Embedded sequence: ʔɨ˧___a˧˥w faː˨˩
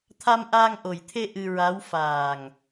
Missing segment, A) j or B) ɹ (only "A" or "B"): B